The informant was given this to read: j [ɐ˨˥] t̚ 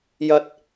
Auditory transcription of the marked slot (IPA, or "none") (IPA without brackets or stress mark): ɐ˨˥